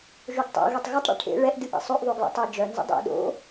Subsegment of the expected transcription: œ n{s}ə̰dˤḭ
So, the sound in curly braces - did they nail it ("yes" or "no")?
no